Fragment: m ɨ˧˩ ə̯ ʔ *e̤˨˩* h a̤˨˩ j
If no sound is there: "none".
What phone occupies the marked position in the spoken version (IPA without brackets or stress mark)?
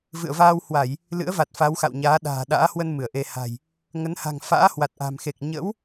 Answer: e˧